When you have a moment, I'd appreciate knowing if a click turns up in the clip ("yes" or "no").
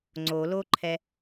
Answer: yes